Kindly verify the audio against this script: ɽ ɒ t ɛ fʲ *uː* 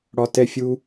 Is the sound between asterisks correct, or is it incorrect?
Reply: incorrect